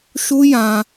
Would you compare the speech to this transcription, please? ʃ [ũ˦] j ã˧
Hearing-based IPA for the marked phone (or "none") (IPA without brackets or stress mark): u˦